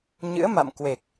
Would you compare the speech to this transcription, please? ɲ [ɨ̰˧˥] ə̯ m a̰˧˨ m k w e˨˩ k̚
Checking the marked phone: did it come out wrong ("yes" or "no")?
no